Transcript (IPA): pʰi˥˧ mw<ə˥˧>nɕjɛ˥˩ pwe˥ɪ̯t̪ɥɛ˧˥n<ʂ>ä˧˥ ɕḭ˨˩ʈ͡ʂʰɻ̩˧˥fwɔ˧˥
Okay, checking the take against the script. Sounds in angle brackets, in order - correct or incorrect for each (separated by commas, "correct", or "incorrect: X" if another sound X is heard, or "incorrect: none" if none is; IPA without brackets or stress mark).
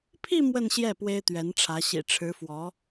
correct, incorrect: ʈ͡ʂʰ